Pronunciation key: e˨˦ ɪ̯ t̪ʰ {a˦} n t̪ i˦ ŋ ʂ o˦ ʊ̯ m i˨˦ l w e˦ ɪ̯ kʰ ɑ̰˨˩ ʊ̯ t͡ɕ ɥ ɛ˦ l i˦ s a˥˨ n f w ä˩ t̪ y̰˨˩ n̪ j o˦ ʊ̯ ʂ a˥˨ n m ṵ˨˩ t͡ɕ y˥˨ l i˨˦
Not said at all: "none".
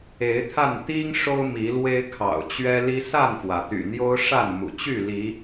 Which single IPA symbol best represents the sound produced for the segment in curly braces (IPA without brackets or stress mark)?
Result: a˥˨